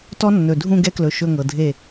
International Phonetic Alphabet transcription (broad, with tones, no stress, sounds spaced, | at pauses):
t ɔ˦ nː ɵ˨ dʱ ũ˦˨ ɡ ɛ˦ k l ɵ˨ ʃ ɵ˦˨ ŋ ɤ˨ dʱ e˦˨